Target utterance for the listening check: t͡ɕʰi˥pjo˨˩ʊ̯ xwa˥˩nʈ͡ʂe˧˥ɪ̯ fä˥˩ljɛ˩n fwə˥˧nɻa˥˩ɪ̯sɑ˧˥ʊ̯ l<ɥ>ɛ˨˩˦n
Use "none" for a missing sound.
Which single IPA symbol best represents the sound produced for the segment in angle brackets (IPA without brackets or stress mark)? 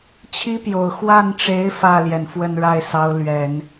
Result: ɥ